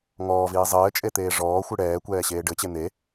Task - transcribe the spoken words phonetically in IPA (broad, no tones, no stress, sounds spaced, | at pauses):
ŋ ɔː v iː zˤ ɘː t͡ʃʼ e t̪ eː ʐ ɔː xʷ ɨ ɽ ɛː kʷ ɛː ɕ eː ɖ ɘ t͡ɕ e n̪ e